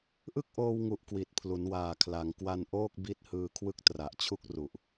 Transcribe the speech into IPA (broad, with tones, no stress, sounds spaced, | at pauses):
ʔ ɯ˥˩ k̚ ʔ oː˧ w ŋ u˨˩ ʔ k w i˨˩ t̚ pʰ l u˩˦ n w aː˨˩ kʰ l a˩˦ ŋ k w a˧ n ʔ oː˥˩ k̚ b i˦˥ t̚ h ɯː˧ kʰ w ɯ˦˥ k̚ t r a˨˩ ʔ t͡ɕʰ u˥˩ k̚ r u˨˩ ʔ